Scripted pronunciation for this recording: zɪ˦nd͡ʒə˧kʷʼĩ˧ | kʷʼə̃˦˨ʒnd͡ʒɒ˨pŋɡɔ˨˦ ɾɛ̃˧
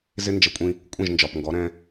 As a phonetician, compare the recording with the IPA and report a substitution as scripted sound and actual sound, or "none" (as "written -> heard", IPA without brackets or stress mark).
none